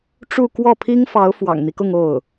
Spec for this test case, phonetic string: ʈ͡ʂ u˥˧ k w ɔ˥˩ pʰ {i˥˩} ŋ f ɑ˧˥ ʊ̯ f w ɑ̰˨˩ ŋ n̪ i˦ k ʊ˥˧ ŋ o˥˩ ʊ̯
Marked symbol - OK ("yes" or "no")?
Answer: no